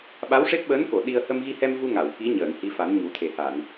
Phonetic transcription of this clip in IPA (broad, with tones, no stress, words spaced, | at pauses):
ɓa˧˥wʂe˦˥p̚ɓəː˧˥nko˨˩˨ ɗi˧ə̯ hə˧mɣi˧hɛ˧m vu˧ŋa˨˩˨w ki˧˥ ɲəː˨˩˨n hi˧˥fa˨˩˦n ɲu˨˩˦t̪ʰe˨˩ha˨˩˨n